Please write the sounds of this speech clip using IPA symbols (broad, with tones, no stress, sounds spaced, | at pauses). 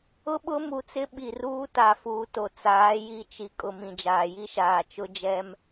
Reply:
ʊ˦ ɓ ʊ˦ m u˨ t͡s ɪ˦ ɓ i˨ r uː˦ t a˨ f uː˨ t o˨ t͡s aː˨˦ j i˦ t͡ʃ i˨ kʼ ʊ˨ m ĩ˨ d͡ʒ aː˨ j i˦ ʃ aː˨ t͡ʃ ʊ˦ d͡ʒ ɛ˦ m